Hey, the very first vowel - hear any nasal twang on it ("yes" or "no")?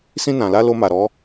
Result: yes